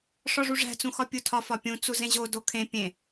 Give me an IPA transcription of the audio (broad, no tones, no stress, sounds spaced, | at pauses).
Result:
ʂ ɒ ʐ u ʐ æ̤ t͡s ũ x ɒ pʲ u tʰ ɒ f ɒ pʲ ũ t͡s u z ẽ ʑ o d o kʰ ẽ pʲ ẽ